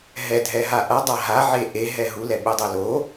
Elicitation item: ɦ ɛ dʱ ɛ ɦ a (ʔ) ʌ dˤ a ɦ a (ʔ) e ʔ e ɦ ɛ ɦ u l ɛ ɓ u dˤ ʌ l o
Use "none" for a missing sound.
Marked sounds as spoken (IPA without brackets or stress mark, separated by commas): ʔ, ʕ